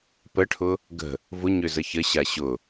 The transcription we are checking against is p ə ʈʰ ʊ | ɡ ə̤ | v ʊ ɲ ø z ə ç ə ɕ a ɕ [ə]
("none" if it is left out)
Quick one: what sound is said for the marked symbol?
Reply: ʊ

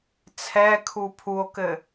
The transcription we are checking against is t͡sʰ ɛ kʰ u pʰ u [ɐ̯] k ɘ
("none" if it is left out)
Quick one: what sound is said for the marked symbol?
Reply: o̯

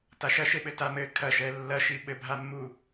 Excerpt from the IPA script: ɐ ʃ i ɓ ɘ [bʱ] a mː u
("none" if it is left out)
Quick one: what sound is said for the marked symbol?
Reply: bʱ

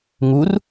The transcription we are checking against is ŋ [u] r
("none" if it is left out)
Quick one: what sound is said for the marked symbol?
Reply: u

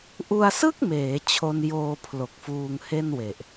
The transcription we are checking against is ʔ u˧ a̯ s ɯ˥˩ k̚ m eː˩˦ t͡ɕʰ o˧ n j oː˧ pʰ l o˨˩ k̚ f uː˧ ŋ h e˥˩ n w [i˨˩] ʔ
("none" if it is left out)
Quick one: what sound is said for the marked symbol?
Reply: e˨˩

